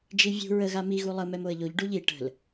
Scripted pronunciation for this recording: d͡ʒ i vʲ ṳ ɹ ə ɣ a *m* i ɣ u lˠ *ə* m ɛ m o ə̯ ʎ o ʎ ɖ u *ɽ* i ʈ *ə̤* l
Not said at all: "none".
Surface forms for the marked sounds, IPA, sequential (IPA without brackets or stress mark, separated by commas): m, ə, ʎ, ə̤